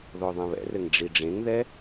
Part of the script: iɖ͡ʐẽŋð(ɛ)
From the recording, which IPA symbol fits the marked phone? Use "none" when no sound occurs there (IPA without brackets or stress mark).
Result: ɛ